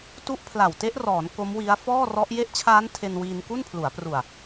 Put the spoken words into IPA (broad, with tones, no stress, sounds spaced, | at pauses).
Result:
t u˦˥ ʔ pʰ l a˨˩ w t e˦˥ ʔ r ɔː˩˦ n k o˦˥ m w i˦˥ a̯ f ɔː˥˩ r ɔ˦˥ ʔ j e˦˥ ʔ t͡ɕʰ aː˦˥ n tʰ e˧ n w iː˧ n k u˥˩ n pʰ l u˩˦ a̯ p r u˨˩ a̯